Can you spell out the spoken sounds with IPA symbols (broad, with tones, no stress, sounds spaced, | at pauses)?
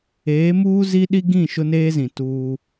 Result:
eː˨˦ m uː˦ z i˦ ɗ i˦ ɡ ĩ˦˨ ʃ ʊ˦ n eː˦ z ĩ˨ t uː˦